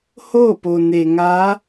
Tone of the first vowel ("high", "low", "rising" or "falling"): falling